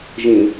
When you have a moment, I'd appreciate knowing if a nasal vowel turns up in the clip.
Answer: yes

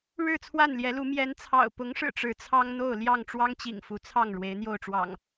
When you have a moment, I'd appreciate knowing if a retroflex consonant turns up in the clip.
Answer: yes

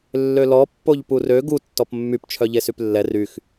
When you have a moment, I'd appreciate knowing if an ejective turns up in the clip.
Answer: no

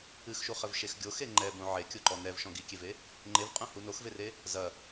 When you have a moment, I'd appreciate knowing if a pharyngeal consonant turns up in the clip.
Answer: yes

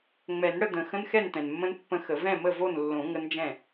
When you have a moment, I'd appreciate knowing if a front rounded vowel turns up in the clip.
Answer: no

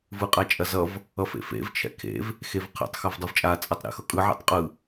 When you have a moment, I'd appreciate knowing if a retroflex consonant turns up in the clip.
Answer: no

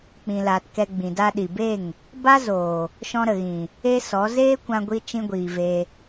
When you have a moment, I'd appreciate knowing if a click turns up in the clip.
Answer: no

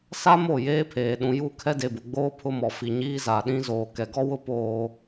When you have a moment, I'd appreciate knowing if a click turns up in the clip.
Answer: no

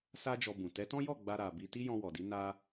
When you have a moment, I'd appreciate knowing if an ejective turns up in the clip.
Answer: no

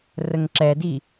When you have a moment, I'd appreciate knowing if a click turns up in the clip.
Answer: yes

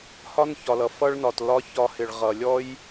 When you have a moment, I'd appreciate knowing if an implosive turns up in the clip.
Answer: no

